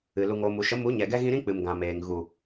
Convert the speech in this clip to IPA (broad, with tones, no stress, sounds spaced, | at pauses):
ɨ˨ l u˨ ŋ oː˨ m u˨ ʃ ə˨˦ m u˨˦ ɲ ɛ˨ ɡ ɛ˧ ɣ ĩ˧ ɾ ĩ˦ k͡p ɨ˨ m ɡ ã˨ m eː˨ ŋ ɣ u˨